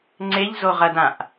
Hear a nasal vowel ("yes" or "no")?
yes